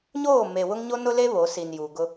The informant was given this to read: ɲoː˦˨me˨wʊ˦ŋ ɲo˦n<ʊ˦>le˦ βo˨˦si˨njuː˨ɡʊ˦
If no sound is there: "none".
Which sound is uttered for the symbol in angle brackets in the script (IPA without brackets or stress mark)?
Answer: ʊ˦